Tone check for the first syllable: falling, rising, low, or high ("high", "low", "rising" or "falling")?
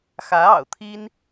rising